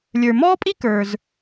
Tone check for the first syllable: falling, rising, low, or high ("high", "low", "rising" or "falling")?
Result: low